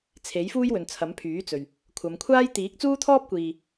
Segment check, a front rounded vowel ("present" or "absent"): present